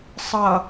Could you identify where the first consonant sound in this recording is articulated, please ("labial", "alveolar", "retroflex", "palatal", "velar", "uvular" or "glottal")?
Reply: alveolar